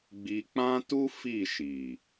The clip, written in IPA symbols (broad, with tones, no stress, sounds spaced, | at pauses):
ɡ͡b i˧ k͡p ã˦ t u˦ f i˦˨ ʃ i˨